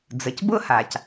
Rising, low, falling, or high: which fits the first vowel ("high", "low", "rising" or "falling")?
low